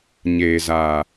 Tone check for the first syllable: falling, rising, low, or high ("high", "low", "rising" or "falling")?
low